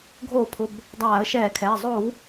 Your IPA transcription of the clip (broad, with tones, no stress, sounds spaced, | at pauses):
ɡʱ oː˧˩˧ pʰ ʊ˩˧˩ b | dˤ aː˧˩˧ ə̯ ʃ ɛː˧˩˧ kʰ ɛː˩˧˩ zˤ o˧˩˧ w